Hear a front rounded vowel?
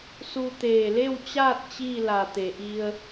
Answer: no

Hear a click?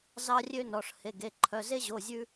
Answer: yes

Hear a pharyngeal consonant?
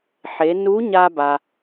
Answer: yes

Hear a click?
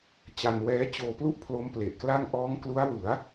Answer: no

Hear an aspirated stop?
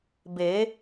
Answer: no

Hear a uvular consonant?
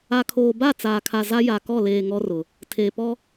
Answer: no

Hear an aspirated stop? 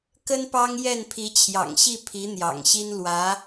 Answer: yes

